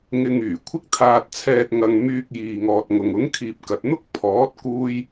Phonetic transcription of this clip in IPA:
ŋ ɪ˧ ŋ yː˨˩ kʷʰ ɪ˥ k̚ t̪ʰ aː˧ t̚ t͡sʰ ɛː˧ t̚ ŋ ɐ˧ ŋ m yː˧ k̚ j iː˨ ŋ ɔː˨ t̚ ŋ ʊ˨ ŋ ʊ˨˥ ŋ kʰ iː˨ p̚ k ɐ˨ t̚ n̪ ʊ˥ k̚ pʰ ɔː˨˥ t̚ k uː˧ j

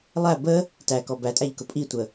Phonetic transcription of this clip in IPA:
lˠ æ b ə | t æ k ɔ b æ tʼ æ ʎ k ʊ pʼ i tʷ ə

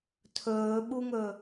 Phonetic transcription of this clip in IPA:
tʰ ɵː ɓ u ŋ ɵ

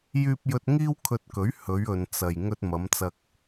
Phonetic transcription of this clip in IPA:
j yː˧ p̚ j ɵ˧ t̚ ŋ iː˥ w kʰ ɵ˧ t̚ k ɵ˨˥ ɥ h ɵ˨˧ ɥ ɵ˨ n t͡s ɐ˨ j ŋ ɵ˧ t̚ m ɐ˨˧ m t͡s ɐ˧ k̚

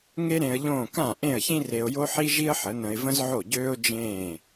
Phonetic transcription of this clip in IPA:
ŋ e˥ ɾ ẽ˧ ə̯ ʎ õː˥˩ k ã˥˩ ʔ ẽ˥˩ ə̯ ç ĩ˥ r e˧ ʊ̯ j o˥ ħ i˥ ʒ i˥ ə̯ ħ ə˩˥ n ə̃˧ ɪ̯ v ə̃˥ z ʕ o˥˩ ɟ øː˥ ʊ̯ d͡ʒ ẽː˥˩

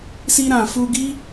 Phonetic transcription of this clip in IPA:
s i˧ ɾ ã˨ f u˧ ɡ i˦

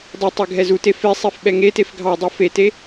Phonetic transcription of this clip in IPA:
dˤ e tˤ ɛ ɡʱ ɛ z u t e f e sˤ e f ɓ ɛ ŋ e t e f ɡʱ ɑ dˤ ɛ f e t e

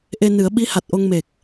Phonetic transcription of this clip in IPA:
ʔ e˧ n ɨ˨˩˦ ə̯ ɓ i˧˥ h a˨˩ t̚ ʔ o˧ ŋ m e˨˩ k̚

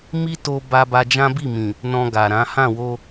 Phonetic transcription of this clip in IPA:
m i˦ t o˧ b a˧ b a˧ d͡ʒ ã˦ b i˦˨ m ĩ˨ | n ɔ̃˧ ɡ a˨ ɾ ã˨˦ h ã˦˨ w o˧

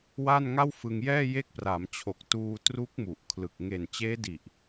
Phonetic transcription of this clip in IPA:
w a˥˩ n ŋ a˥˩ w f ɯ˧ ŋ j ɛː˥˩ j e˦˥ k̚ p r a˩˦ m t͡ɕʰ o˨˩ k̚ t uː˧ t r u˦˥ k̚ m u˨˩ ʔ kʰ l ɯ˨˩ k̚ ŋ e˨˩ n t͡ɕ eː˦˥ d i˨˩ ʔ

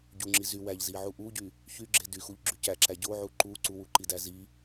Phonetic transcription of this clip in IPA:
ɟ u ŋ͡ǁ i z y w æ ʎ z i ʕ u ʔ u ɟ y | ç y ɡ͡ǁ e d y x u ʎ ɡ͡ǁ y c æ ǁ æ ɟ o ʕ u ǃ u ǀ u w u ǃ i d æ z i

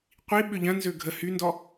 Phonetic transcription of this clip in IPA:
qʷ i ɓ ʏ ʎ ɐ̃ n z ø ɡʱ ə h y n d ɔ

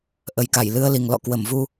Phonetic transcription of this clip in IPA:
ʔ ə˨˩ j k a˧˩ j l ɨ˧ ə̯ l i˨˩ ŋ l ɔ̰˧˨ k w ə˧˩ m v u˧

